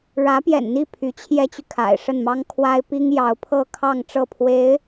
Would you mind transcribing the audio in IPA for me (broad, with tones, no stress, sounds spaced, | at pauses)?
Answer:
ɻ ä˧˥ p j ɛ̰˨˩ n n̪ i˥˩ pʰ y˧˥ t͡ɕʰ j ɛ˥ t͡ɕ y˨ kʰ a̰˨˩ ɪ̯ ʂ ə˥˩ n m ɑ˥ ŋ kʰ w a˥ ɪ̯ p i˥ ŋ j ɑ˧˥ ʊ̯ pʰ ɤ˥˧ kʰ ɑ˥˧ ŋ ʈ͡ʂ ɤ˥˩ pʰ w e˧˥ ɪ̯